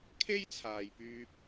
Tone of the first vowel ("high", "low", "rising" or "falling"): high